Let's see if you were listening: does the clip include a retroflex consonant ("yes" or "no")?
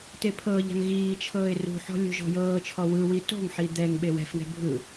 no